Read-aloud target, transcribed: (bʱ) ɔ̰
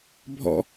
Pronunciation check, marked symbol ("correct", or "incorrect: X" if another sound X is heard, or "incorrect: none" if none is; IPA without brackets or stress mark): correct